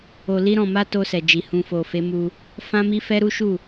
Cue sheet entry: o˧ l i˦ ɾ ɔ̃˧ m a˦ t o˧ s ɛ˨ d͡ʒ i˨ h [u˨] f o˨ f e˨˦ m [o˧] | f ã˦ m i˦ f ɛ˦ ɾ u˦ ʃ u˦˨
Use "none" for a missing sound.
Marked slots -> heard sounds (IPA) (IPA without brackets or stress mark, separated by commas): ũ˨, u˧